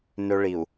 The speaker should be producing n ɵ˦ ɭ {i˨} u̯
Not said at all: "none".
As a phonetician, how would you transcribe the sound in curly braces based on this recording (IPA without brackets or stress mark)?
i˨